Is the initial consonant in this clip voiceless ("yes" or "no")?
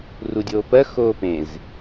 no